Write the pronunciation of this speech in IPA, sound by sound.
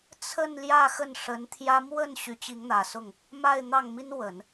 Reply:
t͡sʰ ə˥˧ n l j ä˥˧ x ə˥˩ n ʂ ə˧˥ n t̪ʰ j ä˥ m w ə˥˩ n ɕ y˧˥ t͡ɕ i˧˥ ŋ n̪ ä˨˩ s ʊ˥˩ ŋ | m a˥˧ ɪ̯ n̪ ɑ˥˩ ŋ m i˥ n w ə˨˩˦ n

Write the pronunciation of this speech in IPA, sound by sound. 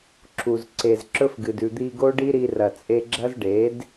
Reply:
ǁ u˨ z ǀ e˨ z ǁ ɵ˦ f ɡ ɨ˨ d ʉ˨ d̪ i˧ ɡ o˦ ɖ i˦ ɾ i˧ r ɐ˨ t͡sʼ e˧ ɡ͡ǁ ɐ˦ z ɖ e˨˦ d

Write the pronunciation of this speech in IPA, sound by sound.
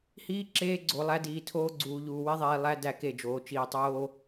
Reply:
h iː˦ ǁ eː˦ ɡ͡ǀ o˨ lˠ æ˦ d iː˨ tʰ oː˦ ɡ͡ǀ uː˨ ʎ uː˨ w i˦ ðˤ iː˨ lˠ æ˦ d æ˦˨ k e˦˨ d͡ʒ oː˨ t͡ʃ iː˨ tˤ oː˦

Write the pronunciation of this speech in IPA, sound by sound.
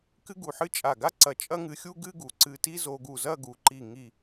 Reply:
k ɨ˥ ɡ u˧˩ ħ ɨ˥ t͡ʃʼ a˧˩ ɡ a˥ ǀ ɐ˧ t͡ʃʼ ɐ˥ ŋ ɨ˧ xʲ u˥ ɡ ɨ˥ ɡ u˩˧ ǀ ɨ˧ t i˥ z o˧ ɡ u˧˩ z ɐ˥˧ ɡ u˩˧ ǃ i˧˩ ŋ i˧˩

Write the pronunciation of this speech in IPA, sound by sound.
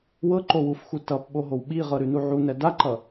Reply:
w ɤ ǃ o w u f x u t ʌ p ɓ o ɦ o w ɓ i ʁ ɤ ɾ ʉ n u ʕ u n ɛ d a ǃ ʌ

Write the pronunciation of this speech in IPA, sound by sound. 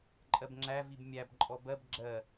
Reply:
ǃʼ ɜ b ŋ͡ǁ æ v i b mʲ æ b ǃʼ ɔ b ɜ b ɡ͡ǁ ɜ

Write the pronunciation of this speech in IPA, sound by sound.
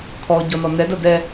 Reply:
kʰ ɔ ɟ ɔ n ɔ n ɛ d ɐ d ɛ

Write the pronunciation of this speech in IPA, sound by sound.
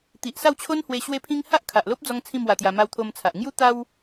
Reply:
t̪ i˨ ʔ s a˥˧ w t͡ɕʰ o˦ n h w e˧ ɕ w e˦ pʰ ĩ˦ ŋ h a˦ ʔ kʰ a˨ ʔ l o˦ p̚ d͡z ɔ˧ ŋ t͡sʰ ĩ˥˧ m w a˧ t̪ j a˧ m a˧ w t̪ʰ o˧ m t͡sʰ a˨ ʔ ŋ j u˦ t̪ a˦ w

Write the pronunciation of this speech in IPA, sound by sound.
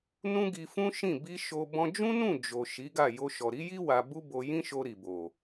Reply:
n ũ˦ ɡ i˧ f ũ˦ ʃ ĩ˦˨ b i˧ ʃ o˧ b ɔ̃˧ d͡ʒ ũ˦ n ũ˦˨ d͡ʒ o˨ ʃ i˨˦ ɡ a˦˨ j o˧ ʃ ɔ˨ ɾ i˨˦ j i˦ w a˧ b u˦ b o˧ j ĩ˦ ʃ o˧ ɾ i˨ b o˨

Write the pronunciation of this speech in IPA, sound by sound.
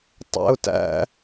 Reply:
tˤ æ̰ ʊ̯ t æ̰

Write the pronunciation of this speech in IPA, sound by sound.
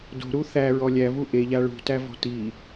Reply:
d o̤ ɾ u θ æ ɹ ɔ lʲ æ v u ʔ e ʎ a ɭ ṳ t æ v ɔ̤ t i

